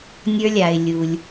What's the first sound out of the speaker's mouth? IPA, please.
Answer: nʲ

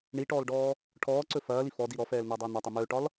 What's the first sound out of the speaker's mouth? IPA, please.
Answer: ɳ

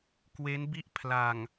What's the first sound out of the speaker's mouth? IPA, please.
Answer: k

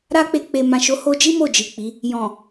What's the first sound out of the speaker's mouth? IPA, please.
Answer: ɾ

